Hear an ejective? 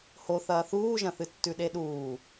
no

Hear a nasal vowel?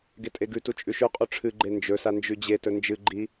no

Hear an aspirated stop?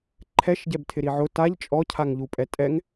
yes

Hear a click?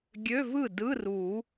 no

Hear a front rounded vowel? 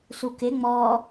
no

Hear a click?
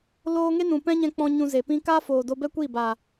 no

